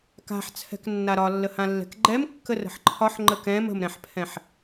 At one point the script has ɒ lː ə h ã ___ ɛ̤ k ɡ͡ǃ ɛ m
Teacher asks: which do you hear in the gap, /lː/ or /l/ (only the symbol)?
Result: lː